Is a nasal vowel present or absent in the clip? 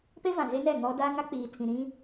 present